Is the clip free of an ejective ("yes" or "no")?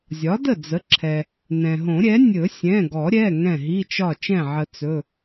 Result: yes